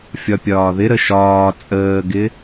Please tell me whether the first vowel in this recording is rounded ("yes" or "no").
yes